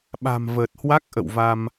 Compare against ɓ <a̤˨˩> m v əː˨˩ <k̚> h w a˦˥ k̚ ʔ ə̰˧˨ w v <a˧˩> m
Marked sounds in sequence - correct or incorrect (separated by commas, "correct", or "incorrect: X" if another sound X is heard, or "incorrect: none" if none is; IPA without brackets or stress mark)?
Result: correct, incorrect: t̚, incorrect: a˧